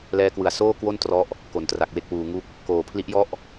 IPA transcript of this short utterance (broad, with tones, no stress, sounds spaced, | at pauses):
l ɛː˧ k w ɯ˨˩ a̯ s oː˥˩ k w o˥˩ n t r ɔ˦˥ ʔ | k o˨˩ n t r a˨˩ k̚ w e˦˥ k̚ w uː˧ ŋ u˥˩ k̚ | k oː˨˩ pʰ l i˦˥ ʔ j ɔ˦˥ ʔ